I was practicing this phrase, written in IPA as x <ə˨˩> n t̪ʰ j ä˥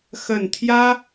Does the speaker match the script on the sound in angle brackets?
yes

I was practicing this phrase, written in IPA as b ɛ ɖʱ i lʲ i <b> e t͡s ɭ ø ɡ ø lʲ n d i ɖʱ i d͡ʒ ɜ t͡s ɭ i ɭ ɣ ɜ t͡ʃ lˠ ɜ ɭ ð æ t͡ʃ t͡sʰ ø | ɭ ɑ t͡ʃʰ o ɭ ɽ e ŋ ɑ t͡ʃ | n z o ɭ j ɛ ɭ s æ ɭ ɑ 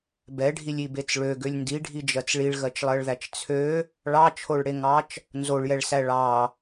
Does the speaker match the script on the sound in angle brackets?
yes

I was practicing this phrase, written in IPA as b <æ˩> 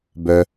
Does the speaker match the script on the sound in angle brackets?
no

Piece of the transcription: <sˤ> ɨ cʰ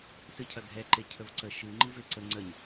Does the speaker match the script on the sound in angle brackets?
no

